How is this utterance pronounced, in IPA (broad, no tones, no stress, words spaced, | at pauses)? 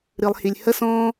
ɾɨlˠhilʲ hə sɔ̃